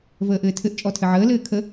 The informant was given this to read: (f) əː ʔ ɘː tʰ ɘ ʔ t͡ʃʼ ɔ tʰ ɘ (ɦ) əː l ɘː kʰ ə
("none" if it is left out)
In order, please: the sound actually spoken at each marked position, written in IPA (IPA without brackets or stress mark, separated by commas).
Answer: v, ʕ